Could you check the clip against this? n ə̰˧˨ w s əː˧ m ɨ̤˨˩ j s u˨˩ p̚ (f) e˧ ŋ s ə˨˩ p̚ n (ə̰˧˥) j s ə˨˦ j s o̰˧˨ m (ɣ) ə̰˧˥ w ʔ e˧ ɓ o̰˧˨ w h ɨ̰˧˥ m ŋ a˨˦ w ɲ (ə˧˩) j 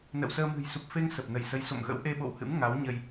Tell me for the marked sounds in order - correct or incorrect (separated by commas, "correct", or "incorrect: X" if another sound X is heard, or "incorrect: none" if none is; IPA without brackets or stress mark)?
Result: correct, incorrect: ə˧˩, correct, incorrect: ə˧